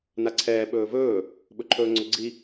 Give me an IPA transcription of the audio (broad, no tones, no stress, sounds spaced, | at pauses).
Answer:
n a ǀʰ ɛː ɓ ɵː v ɵː | ɓ ɵ ǃʰ ɵː ŋ͡ǀ ɵ ɡ͡ǀ i